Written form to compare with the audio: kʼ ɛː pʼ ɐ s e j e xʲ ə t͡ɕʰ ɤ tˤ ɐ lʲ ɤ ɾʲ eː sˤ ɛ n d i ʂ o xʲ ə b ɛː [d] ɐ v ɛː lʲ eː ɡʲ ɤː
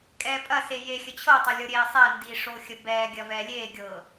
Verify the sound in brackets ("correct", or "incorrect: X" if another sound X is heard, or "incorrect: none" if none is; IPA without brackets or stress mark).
incorrect: ɡʲ